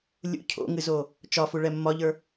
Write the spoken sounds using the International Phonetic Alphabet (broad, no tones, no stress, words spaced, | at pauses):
lʲṵ cʰo̰ŋɨzo | t͡ʃɒfuɭɛ mːɒʎə˞